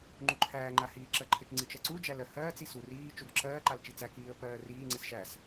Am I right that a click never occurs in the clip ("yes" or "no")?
no